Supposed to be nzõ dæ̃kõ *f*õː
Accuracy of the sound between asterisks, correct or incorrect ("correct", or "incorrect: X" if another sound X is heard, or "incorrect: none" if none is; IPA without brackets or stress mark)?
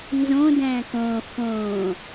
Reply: correct